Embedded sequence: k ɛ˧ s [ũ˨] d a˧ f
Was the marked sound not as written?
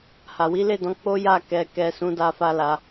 yes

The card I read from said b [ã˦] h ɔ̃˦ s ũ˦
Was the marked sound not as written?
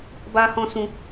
yes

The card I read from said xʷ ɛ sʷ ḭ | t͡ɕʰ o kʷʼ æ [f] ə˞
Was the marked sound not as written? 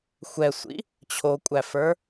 no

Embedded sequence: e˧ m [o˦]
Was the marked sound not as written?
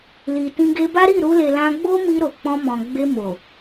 yes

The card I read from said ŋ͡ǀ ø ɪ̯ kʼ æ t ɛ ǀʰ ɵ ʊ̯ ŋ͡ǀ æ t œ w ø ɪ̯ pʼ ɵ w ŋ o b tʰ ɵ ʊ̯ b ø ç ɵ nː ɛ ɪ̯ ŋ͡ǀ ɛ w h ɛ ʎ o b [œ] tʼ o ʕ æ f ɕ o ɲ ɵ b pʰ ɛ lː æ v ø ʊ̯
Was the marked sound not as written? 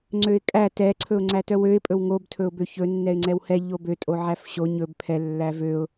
yes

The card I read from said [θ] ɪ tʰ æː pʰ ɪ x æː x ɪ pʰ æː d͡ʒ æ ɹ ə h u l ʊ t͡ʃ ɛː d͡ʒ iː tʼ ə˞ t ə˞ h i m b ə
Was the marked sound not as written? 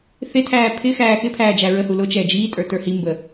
no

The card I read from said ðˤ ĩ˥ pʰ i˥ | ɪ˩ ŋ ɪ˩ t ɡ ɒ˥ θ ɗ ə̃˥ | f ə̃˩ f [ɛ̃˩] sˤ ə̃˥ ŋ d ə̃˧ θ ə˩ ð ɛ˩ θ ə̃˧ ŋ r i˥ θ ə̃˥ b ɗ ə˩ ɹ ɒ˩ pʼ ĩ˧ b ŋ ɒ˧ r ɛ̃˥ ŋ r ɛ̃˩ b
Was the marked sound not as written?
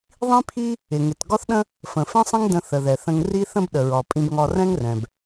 yes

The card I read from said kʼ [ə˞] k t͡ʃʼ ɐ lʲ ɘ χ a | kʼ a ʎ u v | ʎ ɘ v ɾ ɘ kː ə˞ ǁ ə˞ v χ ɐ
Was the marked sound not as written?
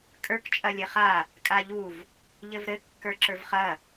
no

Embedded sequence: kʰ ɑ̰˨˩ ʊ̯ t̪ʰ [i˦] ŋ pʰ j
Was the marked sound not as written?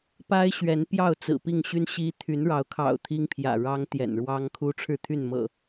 no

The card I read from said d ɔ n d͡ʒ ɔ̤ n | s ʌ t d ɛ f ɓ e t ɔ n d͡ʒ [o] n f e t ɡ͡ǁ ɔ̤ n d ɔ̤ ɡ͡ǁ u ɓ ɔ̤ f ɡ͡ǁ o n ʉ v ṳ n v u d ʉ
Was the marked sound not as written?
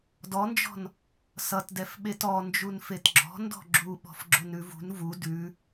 yes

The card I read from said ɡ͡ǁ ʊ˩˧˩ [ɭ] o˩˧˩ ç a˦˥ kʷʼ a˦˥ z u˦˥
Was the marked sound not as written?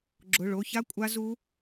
no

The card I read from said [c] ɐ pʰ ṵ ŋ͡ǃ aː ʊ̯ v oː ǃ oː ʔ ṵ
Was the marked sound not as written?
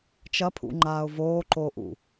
yes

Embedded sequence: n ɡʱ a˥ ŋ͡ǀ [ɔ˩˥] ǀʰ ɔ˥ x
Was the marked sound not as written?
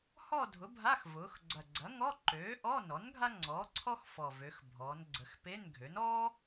yes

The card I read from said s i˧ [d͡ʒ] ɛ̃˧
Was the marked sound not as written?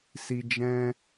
no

